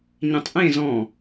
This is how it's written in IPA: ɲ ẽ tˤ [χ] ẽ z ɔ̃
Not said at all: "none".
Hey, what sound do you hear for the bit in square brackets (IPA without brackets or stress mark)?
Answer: ʔ